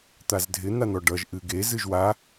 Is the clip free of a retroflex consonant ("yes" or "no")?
no